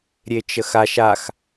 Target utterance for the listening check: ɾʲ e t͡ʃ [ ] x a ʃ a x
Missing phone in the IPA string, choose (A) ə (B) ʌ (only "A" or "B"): A